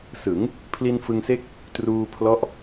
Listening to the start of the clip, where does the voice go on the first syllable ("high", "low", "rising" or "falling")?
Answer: rising